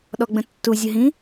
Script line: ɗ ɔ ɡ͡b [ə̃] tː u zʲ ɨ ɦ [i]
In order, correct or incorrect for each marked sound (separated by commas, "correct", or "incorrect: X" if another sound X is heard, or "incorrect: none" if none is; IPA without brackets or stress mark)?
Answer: correct, incorrect: ĩ